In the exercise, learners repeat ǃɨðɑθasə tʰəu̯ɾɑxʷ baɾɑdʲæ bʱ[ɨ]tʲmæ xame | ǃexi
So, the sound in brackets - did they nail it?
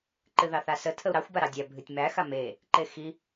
yes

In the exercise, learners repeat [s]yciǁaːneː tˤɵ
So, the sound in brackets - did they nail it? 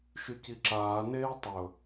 no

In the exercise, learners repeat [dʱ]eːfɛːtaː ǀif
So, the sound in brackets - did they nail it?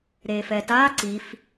no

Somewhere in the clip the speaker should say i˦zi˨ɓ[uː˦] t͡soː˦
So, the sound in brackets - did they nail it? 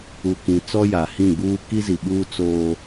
yes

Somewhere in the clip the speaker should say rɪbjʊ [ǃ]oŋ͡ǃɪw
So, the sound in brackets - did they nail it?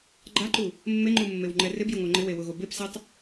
no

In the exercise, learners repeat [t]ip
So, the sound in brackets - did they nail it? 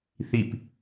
no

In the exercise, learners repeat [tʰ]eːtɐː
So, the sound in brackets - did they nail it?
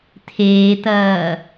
yes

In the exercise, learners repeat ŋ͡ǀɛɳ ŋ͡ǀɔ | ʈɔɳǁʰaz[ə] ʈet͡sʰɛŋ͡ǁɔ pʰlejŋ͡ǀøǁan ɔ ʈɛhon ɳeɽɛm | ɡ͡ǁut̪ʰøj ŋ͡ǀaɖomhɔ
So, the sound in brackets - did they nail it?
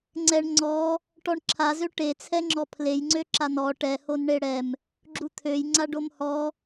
no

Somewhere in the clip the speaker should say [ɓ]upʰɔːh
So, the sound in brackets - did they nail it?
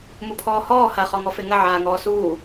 no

